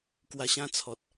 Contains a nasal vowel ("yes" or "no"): yes